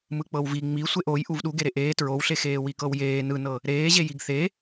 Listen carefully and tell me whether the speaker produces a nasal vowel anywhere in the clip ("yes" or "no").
no